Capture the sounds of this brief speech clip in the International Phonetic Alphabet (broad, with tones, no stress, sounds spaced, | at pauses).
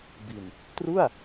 b i˨˩ n | t r u˥˩ a̯